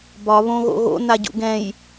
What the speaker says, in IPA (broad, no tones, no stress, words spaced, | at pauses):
bɒ βõɣo̰ɣo̰ naɟṵɡɛ̃j